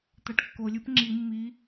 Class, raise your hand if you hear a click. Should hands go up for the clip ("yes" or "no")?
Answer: yes